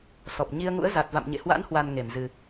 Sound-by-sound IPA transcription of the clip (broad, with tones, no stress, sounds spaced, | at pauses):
s ɔ˨˩ p̚ ɲ i˧ ə̯ ŋ ṵ˧˥ ə̯ z a˨˩ t̚ v a̰˧˨ m ɲ ḛ˧˨ h w a̰˧˥ n h w a˨˩ n ŋ e˧˩ m z ɨ˨˩